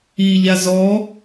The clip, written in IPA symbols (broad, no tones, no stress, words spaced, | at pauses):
i ʎazɔ